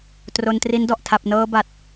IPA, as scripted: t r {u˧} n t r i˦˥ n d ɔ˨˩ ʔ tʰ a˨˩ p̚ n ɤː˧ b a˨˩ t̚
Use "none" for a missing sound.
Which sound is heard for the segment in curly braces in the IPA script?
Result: o˧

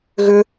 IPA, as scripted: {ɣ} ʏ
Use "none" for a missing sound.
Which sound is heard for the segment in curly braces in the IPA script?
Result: ɣ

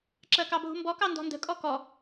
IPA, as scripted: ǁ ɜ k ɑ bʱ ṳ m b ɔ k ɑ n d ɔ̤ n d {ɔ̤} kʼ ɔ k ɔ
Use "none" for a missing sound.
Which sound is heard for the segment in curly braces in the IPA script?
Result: ə̤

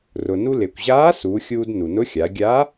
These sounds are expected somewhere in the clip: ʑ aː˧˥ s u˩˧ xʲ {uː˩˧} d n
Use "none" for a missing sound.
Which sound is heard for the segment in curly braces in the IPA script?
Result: uː˧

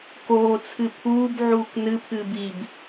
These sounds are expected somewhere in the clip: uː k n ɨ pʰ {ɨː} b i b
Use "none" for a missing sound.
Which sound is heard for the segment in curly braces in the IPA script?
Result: ɨː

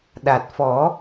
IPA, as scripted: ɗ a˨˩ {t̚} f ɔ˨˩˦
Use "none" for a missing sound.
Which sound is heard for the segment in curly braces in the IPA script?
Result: t̚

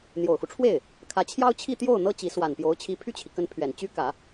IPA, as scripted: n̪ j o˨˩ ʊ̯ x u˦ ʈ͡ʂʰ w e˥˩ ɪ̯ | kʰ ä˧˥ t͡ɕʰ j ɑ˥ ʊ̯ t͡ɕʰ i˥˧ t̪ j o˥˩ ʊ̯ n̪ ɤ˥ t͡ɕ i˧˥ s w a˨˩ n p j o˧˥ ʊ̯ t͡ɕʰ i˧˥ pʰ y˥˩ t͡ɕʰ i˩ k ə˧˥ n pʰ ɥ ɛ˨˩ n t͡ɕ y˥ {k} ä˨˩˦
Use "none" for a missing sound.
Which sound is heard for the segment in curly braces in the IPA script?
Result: k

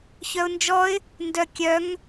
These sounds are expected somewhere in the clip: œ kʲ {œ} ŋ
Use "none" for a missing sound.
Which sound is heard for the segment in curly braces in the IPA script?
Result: œ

